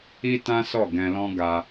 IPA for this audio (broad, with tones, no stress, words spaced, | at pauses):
i˦tã˦ sɔ˦˨ɡɛ̃˧lɔ̃˦ ɡa˧